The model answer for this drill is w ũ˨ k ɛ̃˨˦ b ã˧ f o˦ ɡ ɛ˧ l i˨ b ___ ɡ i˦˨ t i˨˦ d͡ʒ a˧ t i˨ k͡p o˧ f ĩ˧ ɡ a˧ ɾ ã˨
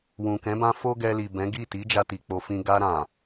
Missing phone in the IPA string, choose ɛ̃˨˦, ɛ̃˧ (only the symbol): ɛ̃˨˦